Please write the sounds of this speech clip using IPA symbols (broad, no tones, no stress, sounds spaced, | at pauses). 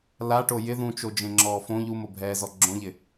l a ʈ o j ɪ ð ũ t͡ʃ o d͡ʒ ẽ ŋ͡ǁ ɔː f õ ʎ u m o bʱ ɛː z ɔ ɡ͡ǁ õ ʎ ɪ